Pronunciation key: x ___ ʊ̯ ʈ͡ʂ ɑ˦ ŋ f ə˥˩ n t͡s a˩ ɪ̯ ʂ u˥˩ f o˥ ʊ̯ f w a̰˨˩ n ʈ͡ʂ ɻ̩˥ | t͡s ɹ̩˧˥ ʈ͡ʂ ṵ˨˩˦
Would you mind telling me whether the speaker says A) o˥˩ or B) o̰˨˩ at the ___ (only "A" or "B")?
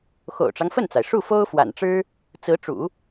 B